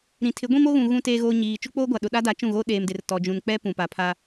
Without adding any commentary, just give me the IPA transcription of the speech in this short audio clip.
ɾ ĩ˨ tʰ ɪ˨˦ ɡʷ ĩ˦ m o˦ ɣ ũ˨ ɣ ũ˦ t eː˦ ɣ oː˦ ɲ iː˨ t͡ʃ u˦ k͡p oː˦ ɡʷ a˨ ɗ ʊ˨ ɗ a˦ d a˨˦ t͡ʃ ũ˦˨ ɣ o˦ ɗ eː˨ m d ɪ˨ r t ɔ˨ d͡ʒ ũ˨ n k͡p ɛ˦ p ũ˨ p a˨ pʰ a˦

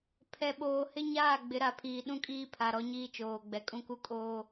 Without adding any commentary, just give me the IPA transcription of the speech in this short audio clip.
pʰ ɛ˨ ɓ oː˨ h ɪ˦ ɲ aː˦˨ ɡ͡b ɪ˨˦ ɾ a˨ pʰ iː˨ ɗ ũ˦ kʼ iː˦ pʰ a˨ ɾ ɔ˦ ɲ iː˦ t͡ʃ oː˨ ɡ͡b ɛ˨ kʼ ũ˦ k u˦ kʼ oː˦

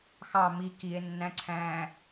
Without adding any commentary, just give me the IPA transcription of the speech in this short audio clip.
x ɑ m i k i e̯ nː æ̃ ǀʰ æ̃ː

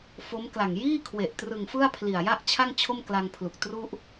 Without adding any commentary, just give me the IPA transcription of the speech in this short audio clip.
f o˦˥ m k l a˨˩ ŋ j iː˥˩ kʰ w e˨˩ ʔ t r ɯ˨˩ ŋ f ɯ˥˩ a̯ pʰ l i˨˩ a̯ j a˥˩ ʔ t͡ɕʰ a˥˩ ŋ t͡ɕʰ o˥˩ m k l a˧ ŋ pʰ l u˨˩ k̚ t r u˥˩ ʔ

